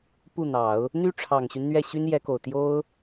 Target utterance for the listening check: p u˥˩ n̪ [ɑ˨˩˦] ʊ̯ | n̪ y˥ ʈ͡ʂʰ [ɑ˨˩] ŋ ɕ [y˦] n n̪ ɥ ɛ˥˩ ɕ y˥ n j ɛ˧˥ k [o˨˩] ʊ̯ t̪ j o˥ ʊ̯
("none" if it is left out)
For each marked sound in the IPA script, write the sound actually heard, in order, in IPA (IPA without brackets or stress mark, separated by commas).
ɑ˨˩˦, ɑ˨˩, y˦, o˨˩